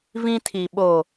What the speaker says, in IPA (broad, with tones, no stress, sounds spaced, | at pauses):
v ĩ˦ tʰ i˨ ɓ o˨